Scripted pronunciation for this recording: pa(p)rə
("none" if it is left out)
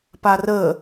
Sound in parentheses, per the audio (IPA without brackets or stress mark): none